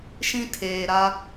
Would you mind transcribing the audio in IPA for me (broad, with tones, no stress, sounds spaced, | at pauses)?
ʃ ĩ˦ tʰ eː˨ ɾ a˦